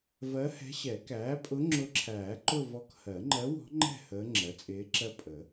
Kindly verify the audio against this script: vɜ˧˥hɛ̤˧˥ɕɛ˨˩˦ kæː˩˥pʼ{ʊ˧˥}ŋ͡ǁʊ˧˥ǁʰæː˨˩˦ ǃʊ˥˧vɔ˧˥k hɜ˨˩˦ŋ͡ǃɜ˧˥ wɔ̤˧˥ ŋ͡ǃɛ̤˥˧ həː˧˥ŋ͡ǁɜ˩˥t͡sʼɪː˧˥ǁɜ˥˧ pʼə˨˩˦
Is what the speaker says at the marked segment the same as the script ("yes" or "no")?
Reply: yes